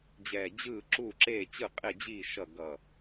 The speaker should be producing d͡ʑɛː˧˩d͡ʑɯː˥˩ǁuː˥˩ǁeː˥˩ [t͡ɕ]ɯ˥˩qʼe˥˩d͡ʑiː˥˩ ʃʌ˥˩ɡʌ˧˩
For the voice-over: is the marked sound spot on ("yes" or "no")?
yes